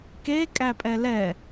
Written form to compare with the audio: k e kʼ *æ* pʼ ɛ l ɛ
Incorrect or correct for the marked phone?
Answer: correct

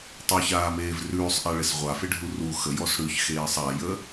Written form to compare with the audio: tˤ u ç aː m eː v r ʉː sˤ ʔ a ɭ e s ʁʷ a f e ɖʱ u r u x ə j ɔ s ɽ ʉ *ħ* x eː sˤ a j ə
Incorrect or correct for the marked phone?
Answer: incorrect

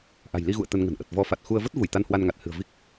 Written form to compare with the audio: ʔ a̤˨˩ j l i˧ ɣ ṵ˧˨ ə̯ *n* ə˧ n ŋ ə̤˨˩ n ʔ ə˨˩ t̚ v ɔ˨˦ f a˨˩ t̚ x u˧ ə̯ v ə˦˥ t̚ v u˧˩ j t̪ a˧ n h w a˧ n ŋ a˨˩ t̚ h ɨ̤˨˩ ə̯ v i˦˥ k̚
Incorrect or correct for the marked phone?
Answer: incorrect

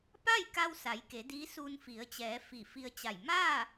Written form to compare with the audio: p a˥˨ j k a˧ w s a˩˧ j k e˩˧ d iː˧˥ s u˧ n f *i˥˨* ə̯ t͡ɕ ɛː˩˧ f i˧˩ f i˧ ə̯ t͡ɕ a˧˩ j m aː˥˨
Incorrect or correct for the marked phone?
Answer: incorrect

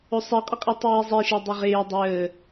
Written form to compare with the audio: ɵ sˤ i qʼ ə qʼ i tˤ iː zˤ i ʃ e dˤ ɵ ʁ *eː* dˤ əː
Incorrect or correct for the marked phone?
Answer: correct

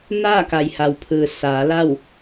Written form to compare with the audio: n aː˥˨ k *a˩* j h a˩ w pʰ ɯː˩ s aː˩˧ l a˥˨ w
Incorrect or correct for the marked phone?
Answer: correct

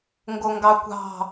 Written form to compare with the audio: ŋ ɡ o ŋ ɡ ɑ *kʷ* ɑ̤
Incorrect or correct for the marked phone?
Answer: correct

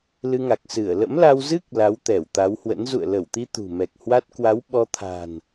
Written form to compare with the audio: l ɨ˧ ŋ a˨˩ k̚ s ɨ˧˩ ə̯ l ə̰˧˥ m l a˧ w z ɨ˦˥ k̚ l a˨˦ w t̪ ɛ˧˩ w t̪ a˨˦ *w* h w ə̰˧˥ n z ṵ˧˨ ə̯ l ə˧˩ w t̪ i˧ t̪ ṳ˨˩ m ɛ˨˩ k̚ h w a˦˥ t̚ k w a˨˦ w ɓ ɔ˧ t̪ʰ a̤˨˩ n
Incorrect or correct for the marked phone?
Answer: correct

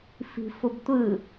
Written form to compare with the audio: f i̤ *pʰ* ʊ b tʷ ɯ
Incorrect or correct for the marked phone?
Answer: incorrect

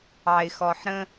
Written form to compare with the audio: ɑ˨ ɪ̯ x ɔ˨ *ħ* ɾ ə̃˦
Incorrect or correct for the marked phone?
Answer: correct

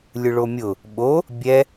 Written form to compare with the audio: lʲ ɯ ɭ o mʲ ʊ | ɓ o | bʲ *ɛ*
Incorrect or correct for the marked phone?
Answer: correct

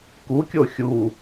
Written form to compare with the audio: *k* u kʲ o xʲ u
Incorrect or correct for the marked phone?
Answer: correct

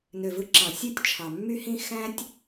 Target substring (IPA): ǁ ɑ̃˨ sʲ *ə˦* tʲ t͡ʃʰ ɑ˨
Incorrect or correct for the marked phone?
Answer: incorrect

